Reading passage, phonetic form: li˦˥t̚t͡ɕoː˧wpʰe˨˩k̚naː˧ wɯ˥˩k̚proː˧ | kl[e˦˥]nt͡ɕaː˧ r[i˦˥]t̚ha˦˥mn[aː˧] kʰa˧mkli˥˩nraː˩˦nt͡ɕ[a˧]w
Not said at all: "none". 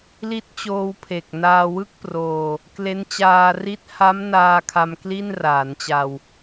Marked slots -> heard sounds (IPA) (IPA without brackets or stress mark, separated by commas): e˦˥, i˦˥, aː˧, a˧